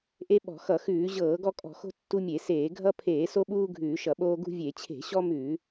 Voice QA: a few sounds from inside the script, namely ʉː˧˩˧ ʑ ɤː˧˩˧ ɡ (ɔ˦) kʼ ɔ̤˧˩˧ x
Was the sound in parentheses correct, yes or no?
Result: yes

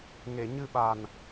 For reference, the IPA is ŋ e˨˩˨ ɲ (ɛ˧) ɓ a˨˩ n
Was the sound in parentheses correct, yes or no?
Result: no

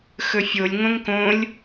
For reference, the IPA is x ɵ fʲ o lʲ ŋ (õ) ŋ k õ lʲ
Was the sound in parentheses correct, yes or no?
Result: yes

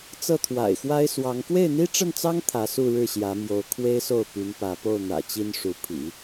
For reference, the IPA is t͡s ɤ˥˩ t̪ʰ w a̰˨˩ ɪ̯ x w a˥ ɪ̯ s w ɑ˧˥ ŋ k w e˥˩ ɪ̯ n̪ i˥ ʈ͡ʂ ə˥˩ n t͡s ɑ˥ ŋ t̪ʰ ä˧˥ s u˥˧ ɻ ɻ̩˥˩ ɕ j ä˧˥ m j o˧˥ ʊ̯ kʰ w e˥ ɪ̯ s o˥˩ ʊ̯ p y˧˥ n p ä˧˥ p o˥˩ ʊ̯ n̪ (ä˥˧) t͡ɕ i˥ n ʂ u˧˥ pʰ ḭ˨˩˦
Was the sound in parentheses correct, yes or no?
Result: no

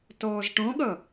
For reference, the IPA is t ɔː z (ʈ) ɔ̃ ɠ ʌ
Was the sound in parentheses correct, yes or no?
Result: yes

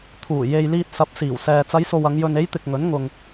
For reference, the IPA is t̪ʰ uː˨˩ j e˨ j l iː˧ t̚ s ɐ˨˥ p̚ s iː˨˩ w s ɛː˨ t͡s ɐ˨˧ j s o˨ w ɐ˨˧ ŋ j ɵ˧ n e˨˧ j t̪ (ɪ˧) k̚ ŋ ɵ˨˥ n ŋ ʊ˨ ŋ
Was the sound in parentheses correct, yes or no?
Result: no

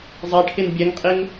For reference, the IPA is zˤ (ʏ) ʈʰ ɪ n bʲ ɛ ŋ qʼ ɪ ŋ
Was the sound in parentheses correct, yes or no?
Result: no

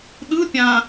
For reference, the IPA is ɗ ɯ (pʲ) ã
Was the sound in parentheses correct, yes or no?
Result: yes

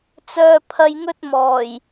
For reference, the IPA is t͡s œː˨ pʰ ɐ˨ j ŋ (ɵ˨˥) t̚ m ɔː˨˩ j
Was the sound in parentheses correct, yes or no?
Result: no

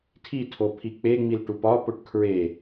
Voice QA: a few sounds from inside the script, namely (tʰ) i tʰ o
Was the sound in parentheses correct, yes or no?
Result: yes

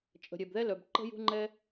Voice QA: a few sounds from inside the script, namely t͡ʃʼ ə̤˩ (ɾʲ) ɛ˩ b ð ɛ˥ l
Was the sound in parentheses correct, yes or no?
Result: yes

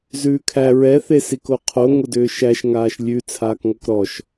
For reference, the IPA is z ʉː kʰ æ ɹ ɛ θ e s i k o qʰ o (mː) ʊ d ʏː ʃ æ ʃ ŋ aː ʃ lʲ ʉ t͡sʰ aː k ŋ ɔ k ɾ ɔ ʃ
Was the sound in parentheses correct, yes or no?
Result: no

